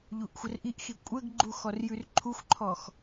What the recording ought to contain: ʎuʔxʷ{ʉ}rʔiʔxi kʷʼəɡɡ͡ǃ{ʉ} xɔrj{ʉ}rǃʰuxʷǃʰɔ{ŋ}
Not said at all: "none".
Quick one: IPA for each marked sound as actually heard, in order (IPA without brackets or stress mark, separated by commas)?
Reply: ə, u, ʉ, x